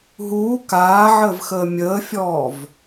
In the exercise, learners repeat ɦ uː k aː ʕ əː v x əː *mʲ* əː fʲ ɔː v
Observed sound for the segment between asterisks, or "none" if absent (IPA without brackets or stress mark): mʲ